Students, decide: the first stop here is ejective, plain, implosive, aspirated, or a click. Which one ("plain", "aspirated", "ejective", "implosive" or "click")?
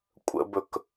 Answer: ejective